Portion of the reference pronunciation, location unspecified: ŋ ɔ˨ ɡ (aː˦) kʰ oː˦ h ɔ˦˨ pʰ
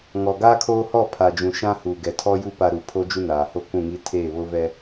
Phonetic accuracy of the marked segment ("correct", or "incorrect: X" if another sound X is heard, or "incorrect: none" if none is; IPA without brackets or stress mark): correct